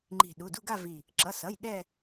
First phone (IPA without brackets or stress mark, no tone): ŋ͡ǃ